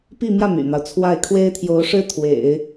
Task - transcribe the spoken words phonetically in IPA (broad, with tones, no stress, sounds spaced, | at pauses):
p i˥˧ m j ä˥˩ m y̰˨˩ n̪ ɑ˦ ʊ̯ t͡sʰ w a˥˩ ɪ̯ kʰ w e˥ ɪ̯ t̪ʰ j o˧˥ ʊ̯ ʂ ɻ̩˥ t̪ʰ w ḛ˨˩˦ ɪ̯